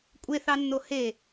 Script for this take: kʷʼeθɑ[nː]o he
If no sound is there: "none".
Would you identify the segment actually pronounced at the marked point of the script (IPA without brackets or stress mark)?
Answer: nː